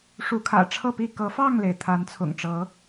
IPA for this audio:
ʂ u˨˦ kʰ ä̰˨˩ ʈ͡ʂʰ ɤ˥˨ p i˥˨ k ɤ˨˦ f ɑ˥˨ ŋ l e˩ ɪ̯ t̪ʰ a˨˦ n t͡sʰ ʊ̰˨˩ ŋ ʈ͡ʂ ɤ˨˦

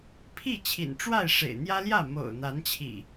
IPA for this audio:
pʰ i˥˨ t͡ɕʰ ḭ˨˩ n ʈ͡ʂ w a˥˨ ɪ̯ ʂ ḛ˨˩ ɪ̯ n̪ j ä˦ l j ä˥˨ m o̰˨˩ ʊ̯ n̪ a˨˦ n t͡ɕʰ ḭ˨˩

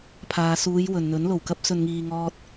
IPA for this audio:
pʰ aː˨ s uː˨˧ j w ɵ˨ n n̪ ɵ˨˥ n l o˨˩ w k ɐ˥ p̚ s ɵ˧ n ŋ iː˧ ŋ ɔː˧ t̚

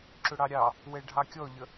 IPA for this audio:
ǁ ʊ ɽ ɑ ɾʲ ɑ | w ɛ ɖʱ ɑ kʲ ɔ ʎ ə

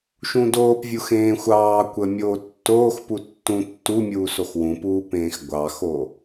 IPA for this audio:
ʃ ũ d oː p vʲ u x ẽː xʷ ɑː kʷ ə mʲ oː tː oː x p u tː ũ tː u mʲ uː s o x w ũ p uː p ẽː x ɡʷ ɑ x o

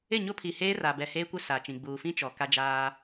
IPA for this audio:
ɪ˦˨ ɲ o˦ pʰ i˨ h eː˦ r a˨ b ɛ˨ h eː˦ kʷ ɪ˦ s aː˨ t͡ʃ ĩ˨ ɡ͡b uː˨ f ĩ˦ t͡ʃ ɔ˨ k a˦ d͡ʒ aː˦

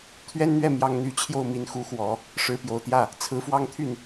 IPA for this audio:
t̪ʰ ɥ ɛ˥ n n̪ ɥ ɛ˥˩ m j ɑ˥ ŋ n̪ y˧˥ t͡ɕʰ j o˥˩ ʊ̯ m i˧˥ n x u˧˥ x w ɔ˨˩˦ | ʂ ɻ̩˧˥ p j o˨˩ ʊ̯ t̪ j ä˥˩ | t͡sʰ ɹ̩˧˥ f w ɑ˥˧ ŋ t̪ʰ y˥˩ n

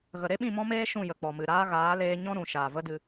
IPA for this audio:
ɣ ə˨ ɾ e˦ ɓ ĩ˦˨ m ɔ̃˦ m eː˦ ʃ ũ˦˨ j ə˨ k͡p ɔ˨ m ɨ˨ ɾ aː˦ ɣ aː˨˦ l eː˧ ɲ ɔ̃˦ ɾ ũ˨ ʃ a˨ v ə˦ d ɨ˧

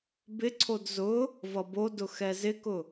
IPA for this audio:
b ɪ ǀʰ o d z ʊ | v ʌ b o d ʊ x ɛ z ɪ k ʊ

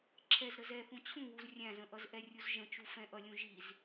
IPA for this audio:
ǁʰ ɛ z ɾ ə z ɛ θ ũ t͡ɕʰ ũ w u z rʲ æ̃ z ə̃ ʔ ʌ z ʔ ɛ rʲ u z ʒ ə̃ t͡ʃ u f ɛ̃ ʔ ʌ lʲ ũ ʒ i z

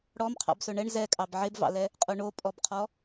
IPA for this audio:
ɽ ɔ m qʰ ɑ̰ b s ɵ ɳ ɛ ɳ z ɛ kʼ ɑ b ʕ e b v ɑ̰ l ɛ | qʼ o ɳ o pʼ ɔ b qʰ ɔ

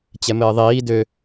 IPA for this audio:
t͡ɕ ɛ m ɘː ðˤ iː d ø

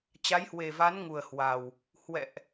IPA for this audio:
t͡ɕ a˨˦ j h w e˨˩ v a˨˦ n ŋ u˨˩ ə̯ h w a˨˩ w | h w ɛ̰˧˨ ʔ

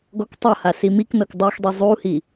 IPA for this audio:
ɡ ɔ k tˤ ɤ h a s i m i k n ɤ k dˤ u x dˤ i zˤ u h i

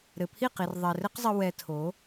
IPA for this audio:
ɾ ɘ˨ pʰ i˦˨ q i˨ r ðˤ ɛ˨ r ɘ˦ q zˤ ɘ˧ w ɛ˧ tʰ o˨˦

